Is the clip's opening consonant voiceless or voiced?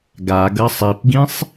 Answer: voiced